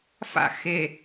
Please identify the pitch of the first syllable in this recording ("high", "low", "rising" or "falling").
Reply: falling